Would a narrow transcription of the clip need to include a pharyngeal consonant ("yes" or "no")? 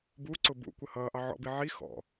yes